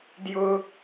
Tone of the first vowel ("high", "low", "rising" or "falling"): high